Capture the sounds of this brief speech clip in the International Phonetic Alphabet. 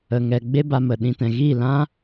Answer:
ə˨ ŋ ɛ˨ ɡ͡b e˧ b a˨ m ə˨ ɗ ĩ˧ t ɛ̃˨ ɣ i˦˨ l ã˦

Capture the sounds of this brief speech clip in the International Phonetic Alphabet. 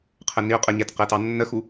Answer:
qʰ ə n i ʊ̯ qʼ ə ɲ ɛ t q ɜ t ɑ nː ə x u

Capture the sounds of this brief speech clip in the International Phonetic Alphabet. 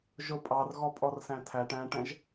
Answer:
ʒ ʊ pʼ ɑ r ɣ ɔ pʼ ɔ r s æ̃ tʰ æ ʈ æ̃ ʈ ɛ̃ ʒ

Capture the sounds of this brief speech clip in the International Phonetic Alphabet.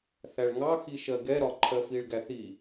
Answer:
θ æ ɭ ŋ ɑ x i ʃ ɜ ɡ ɛ ɾ ɒ ǃʰ ɜ f i ɭ ɡ æ θ i

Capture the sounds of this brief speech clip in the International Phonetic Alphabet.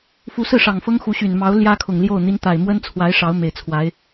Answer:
f u˧˥ s ɹ̩˥˩ ʂ ɑ˨˩ ŋ f ɤ˥ ŋ x u˧˥ ɕ y˨˩ n m ɑ˧˥ ʊ̯ l j ä˥ kʰ ʊ˨˩ ŋ l j o˥˩ ʊ̯ n̪ i˧˥ n t̪ a˨˩ ɪ̯ m w ə˥ n t͡sʰ w a˧˥ ɪ̯ ʂ ɑ˧˥ ʊ̯ m e˨˩ ɪ̯ t͡sʰ w a˧˥ ɪ̯

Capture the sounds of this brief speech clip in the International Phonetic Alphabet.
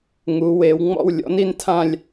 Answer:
ŋ u˩˧ w e˩˧ w ŋ͡m ɔ̰˥˧ w lʲ ɔ̰˩˥ n i˥˧ n tʰ ã˥˧ lʲ

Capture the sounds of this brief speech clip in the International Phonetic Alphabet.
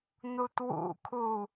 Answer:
n u t w ṵ kʰ u

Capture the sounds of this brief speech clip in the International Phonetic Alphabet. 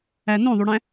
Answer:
æ n õ ðˤ y ɽ æ̃

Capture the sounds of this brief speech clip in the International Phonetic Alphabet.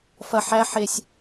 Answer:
f ɐ ħ æ ħ e sʲ

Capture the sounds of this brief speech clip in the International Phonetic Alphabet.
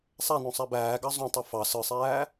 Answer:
sˤ æ n õ sˤ æ b æː ɡ ɑ zˤ õ tˤ u f ɑ s ɯ sˤ æː

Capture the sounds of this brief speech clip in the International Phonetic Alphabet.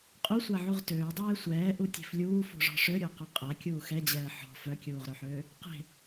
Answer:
qʼ u sʷ a ʕ u ʁ t øː dˤ ɛː sʷ ɛː ʔ u tʲ e̤ f lʲ uː f ṳ ʐ ɔ̤ ʂ ø ɾʲ ɔ q ø qʼ a kʲ uː x ɛ d͡ʑ ɛː ħ ɔ̤ f œ kʲ uː ʁ ɾ ø ħ øː | q e̤

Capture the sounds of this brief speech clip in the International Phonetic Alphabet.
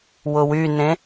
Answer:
w ʊ w y n ẽ

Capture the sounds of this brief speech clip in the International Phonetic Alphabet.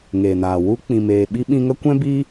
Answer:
ŋ eː˨ n aː˨ w u˧ k͡p ĩ˨ m eː˨ ɓ i˧ ɓ ĩ˧ ŋ ə˦ kʷ ɛ̃˦ b iː˦

